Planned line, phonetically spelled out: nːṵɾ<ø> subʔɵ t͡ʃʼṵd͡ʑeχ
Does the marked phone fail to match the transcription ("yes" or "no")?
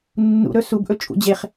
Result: yes